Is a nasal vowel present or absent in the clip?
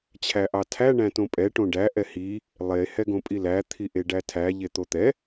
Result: present